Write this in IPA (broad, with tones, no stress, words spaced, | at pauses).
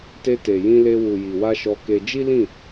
te˧te˨jĩ˧le˧ wu˨ji˨wa˧ ʃɔ˧ke˧ d͡ʒi˦lĩ˦˨